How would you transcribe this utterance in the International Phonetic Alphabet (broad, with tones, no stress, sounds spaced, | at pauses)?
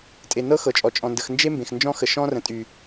tʼ e˨ n ɤ˦ x ɤ˨ t͡ʃʼ ɔ˨ t͡ʃʼ ɔ̃˨ n d ə˨ x n d͡ʒ e˦ m b ẽ˨ x n d͡ʒ ɔ̃˦ x ə˨ ʃ ɔ̃˦ r ə̃˨ tʼ y˨